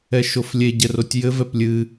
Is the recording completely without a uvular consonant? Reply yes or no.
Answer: yes